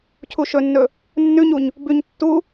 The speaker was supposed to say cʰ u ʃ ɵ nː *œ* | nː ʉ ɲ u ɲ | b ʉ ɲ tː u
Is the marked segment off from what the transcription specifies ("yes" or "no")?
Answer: yes